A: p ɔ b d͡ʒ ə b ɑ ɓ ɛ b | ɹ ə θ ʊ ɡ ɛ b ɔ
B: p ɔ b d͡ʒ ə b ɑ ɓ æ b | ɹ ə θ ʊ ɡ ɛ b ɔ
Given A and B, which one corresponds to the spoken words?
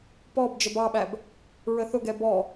B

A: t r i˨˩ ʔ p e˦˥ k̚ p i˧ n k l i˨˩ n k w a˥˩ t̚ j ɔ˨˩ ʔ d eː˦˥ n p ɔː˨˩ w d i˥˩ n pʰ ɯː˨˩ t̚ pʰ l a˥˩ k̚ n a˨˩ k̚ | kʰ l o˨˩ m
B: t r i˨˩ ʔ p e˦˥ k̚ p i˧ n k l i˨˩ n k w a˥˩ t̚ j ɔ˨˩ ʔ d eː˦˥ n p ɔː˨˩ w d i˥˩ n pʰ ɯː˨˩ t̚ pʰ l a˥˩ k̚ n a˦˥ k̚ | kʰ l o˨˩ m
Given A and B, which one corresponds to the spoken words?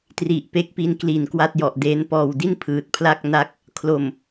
B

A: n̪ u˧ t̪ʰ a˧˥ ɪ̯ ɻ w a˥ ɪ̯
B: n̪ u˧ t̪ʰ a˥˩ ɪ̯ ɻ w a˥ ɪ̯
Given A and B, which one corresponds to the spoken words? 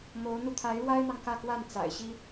A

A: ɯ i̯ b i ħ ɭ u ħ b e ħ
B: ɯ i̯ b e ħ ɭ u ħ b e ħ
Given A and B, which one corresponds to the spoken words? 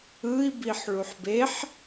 A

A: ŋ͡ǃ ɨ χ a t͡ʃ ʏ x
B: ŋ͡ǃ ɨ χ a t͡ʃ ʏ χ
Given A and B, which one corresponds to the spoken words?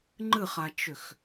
A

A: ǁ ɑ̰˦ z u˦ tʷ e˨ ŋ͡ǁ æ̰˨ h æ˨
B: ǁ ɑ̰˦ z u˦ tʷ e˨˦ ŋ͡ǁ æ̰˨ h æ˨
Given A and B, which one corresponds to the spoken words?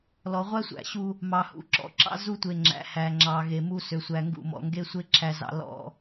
A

